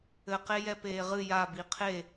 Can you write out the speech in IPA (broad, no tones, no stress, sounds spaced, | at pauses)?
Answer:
ɘ q e j ɛ p eː ʁ ɨ j a b i qʰ e